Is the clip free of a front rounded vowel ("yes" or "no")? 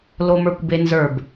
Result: yes